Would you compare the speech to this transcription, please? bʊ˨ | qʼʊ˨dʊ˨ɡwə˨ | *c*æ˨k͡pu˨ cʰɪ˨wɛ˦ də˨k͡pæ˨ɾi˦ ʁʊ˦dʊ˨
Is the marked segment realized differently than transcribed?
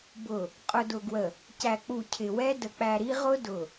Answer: no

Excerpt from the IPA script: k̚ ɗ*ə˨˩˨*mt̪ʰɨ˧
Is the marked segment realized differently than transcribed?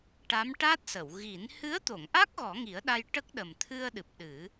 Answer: yes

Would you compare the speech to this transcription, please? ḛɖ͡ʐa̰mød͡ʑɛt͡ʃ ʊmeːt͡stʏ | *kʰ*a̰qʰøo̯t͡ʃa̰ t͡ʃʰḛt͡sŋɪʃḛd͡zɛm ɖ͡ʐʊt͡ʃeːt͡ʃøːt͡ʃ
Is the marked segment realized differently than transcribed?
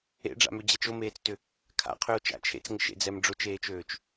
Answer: no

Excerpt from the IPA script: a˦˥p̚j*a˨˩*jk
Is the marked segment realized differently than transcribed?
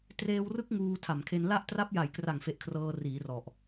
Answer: no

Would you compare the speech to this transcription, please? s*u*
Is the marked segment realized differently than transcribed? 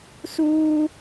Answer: yes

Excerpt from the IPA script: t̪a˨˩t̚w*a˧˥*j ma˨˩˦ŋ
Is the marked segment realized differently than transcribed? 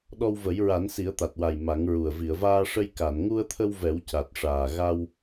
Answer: yes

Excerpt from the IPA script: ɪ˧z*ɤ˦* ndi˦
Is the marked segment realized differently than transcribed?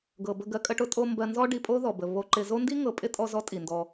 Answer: yes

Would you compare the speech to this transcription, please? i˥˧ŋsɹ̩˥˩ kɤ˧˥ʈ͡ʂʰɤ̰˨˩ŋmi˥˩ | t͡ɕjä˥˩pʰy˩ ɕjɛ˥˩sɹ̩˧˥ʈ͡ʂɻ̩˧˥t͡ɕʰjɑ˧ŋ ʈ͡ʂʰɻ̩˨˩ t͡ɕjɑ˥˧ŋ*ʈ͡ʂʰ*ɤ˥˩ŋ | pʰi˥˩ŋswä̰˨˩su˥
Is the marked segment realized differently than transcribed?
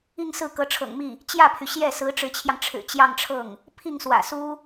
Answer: no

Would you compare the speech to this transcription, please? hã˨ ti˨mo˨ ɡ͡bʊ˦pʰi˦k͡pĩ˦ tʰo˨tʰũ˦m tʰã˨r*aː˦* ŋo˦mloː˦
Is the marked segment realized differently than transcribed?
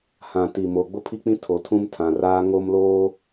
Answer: no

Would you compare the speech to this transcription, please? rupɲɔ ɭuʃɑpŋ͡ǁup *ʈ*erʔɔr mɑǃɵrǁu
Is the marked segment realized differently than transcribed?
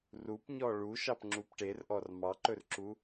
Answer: no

